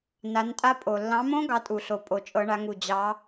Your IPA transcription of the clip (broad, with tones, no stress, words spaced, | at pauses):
na˨˦ntʼa˦˥pʼo˨˩ lːɑ̃˨˦mõ˦˥ ɡɑ˦˥tʼu˨˩ɬo˨˩ pʼo˨˩t͡ʃʼɤ˨˦ɳa˨˦ŋu˨˩ d͡ʑɑ˨˦